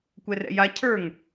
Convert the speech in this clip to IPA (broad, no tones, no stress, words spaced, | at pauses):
kʷɛrɛ̰ja cʰə˞ŋ